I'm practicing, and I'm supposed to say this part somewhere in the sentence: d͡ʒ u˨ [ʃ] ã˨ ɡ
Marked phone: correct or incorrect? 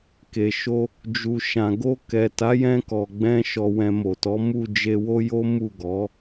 correct